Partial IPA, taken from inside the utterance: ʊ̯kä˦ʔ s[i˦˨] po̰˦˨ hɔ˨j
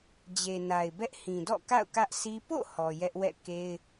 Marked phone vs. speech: incorrect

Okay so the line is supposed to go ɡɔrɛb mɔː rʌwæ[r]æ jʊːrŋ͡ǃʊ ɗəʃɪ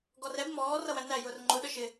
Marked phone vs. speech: incorrect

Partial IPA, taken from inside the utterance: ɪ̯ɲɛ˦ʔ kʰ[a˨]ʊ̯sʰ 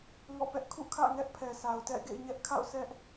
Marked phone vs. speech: incorrect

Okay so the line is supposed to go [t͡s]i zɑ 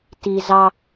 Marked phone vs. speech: incorrect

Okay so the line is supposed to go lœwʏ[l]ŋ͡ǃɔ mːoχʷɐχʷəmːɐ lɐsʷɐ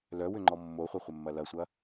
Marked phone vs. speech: incorrect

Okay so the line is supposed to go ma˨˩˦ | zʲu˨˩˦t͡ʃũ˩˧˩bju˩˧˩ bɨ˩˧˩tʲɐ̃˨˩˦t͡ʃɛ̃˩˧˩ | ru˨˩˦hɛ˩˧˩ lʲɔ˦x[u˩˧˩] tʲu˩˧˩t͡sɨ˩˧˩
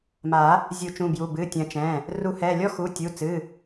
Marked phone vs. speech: correct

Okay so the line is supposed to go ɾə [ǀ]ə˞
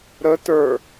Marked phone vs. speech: incorrect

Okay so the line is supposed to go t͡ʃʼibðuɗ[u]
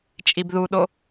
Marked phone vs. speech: incorrect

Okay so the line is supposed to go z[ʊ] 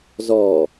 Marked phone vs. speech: incorrect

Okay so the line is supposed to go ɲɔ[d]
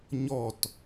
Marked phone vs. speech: incorrect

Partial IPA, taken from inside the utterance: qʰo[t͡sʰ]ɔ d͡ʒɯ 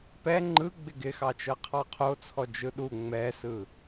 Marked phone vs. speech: correct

